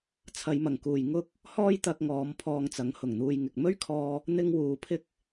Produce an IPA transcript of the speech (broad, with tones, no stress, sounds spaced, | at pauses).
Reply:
t͡sʰ ɐ˨˧ j m ɐ˨˩ ŋ k uː˨ j ŋ ʊ˥ k̚ | h ɔː˥ j t̪ ɐ˧ k̚ ŋ ɔː˨˧ m pʰ ɔː˧ ŋ t͡s ɐ˨˥ ŋ h ʊ˨˩ ŋ n̪ uː˧ j ŋ ɪ˨ k̚ m ɵ˥ ɥ kʰ ɔː˧ | n̪ ɪ˥ ŋ w uː˨˧ pʰ ɪ˥ k̚